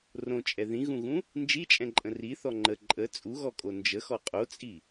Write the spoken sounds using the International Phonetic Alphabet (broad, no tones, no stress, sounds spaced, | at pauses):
r õ t͡ʃʼ ɛ ð ĩ ɣ ũ ɣ ũ | n d͡ʒ i t͡ʃʼ ɛ̃ ǃʼ ə̃ r i θ ɔ ŋ͡ǃ ə ǃʼ ə t͡sʼ u ɣ ɔ kʼ o n d͡ʒ ə x ɔ qʼ o t͡sʼ i